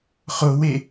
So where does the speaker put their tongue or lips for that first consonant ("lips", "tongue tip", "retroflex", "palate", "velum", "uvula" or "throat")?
uvula